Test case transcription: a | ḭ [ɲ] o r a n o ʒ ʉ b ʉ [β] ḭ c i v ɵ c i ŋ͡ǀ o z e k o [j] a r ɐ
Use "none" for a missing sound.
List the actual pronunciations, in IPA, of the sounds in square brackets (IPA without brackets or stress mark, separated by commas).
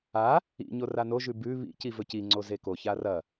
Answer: ɲ, β, ç